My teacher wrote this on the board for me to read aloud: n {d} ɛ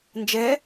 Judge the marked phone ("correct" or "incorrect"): incorrect